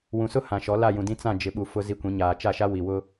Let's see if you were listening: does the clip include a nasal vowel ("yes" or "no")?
yes